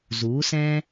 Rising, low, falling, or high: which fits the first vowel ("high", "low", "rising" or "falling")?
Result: rising